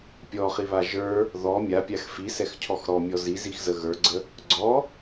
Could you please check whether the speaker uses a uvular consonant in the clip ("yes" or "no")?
yes